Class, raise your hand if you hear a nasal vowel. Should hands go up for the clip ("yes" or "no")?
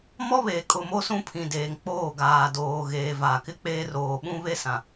yes